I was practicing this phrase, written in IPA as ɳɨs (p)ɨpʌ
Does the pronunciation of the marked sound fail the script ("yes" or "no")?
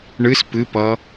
no